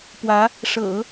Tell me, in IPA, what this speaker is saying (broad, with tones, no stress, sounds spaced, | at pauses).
p w ä˧˥ | ʂ ɤ̰˨˩˦